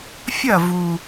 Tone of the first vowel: falling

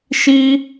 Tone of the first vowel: high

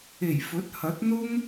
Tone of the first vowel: low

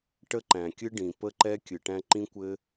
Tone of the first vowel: high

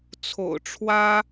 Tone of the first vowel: low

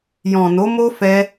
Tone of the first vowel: low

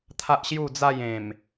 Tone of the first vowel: high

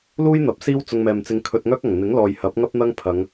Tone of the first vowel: high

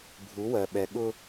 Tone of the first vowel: rising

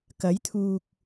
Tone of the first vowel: rising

